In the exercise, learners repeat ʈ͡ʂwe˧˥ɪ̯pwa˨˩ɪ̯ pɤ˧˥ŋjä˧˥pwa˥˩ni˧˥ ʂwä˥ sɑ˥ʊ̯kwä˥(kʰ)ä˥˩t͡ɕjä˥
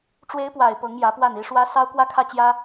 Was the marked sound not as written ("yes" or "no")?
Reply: no